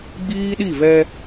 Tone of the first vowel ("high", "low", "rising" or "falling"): high